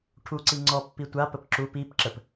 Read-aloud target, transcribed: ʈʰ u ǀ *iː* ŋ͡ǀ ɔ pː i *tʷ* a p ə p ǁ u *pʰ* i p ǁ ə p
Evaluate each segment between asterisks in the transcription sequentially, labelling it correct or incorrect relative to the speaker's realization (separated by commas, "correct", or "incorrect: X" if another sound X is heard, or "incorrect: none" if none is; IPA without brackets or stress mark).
incorrect: i, correct, incorrect: p